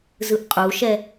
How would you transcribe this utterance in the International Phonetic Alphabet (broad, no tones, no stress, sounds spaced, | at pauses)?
z ɯ ʔ qʼ u ʃ ɛ